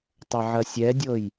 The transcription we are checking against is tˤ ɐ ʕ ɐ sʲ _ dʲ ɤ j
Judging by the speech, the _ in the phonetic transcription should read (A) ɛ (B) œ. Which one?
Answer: A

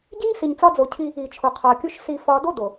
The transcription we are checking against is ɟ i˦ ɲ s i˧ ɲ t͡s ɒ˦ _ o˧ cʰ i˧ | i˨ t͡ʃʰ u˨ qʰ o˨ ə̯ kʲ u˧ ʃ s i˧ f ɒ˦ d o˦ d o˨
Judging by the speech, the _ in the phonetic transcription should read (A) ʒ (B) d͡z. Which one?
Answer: B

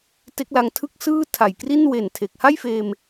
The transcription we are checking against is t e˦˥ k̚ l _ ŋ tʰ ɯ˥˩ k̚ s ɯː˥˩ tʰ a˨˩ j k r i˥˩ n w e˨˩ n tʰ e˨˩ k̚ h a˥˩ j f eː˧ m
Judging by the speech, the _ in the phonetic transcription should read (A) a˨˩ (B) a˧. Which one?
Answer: B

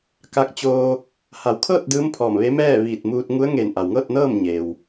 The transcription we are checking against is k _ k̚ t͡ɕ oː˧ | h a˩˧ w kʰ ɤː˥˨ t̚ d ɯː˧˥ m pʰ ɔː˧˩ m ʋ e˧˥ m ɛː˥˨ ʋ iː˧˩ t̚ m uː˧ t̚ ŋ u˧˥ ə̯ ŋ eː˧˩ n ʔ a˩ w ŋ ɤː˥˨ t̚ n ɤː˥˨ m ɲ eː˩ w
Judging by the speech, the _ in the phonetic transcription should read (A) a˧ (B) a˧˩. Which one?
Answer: A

